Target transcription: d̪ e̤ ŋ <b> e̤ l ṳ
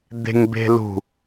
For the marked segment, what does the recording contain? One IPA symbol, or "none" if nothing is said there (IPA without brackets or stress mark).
b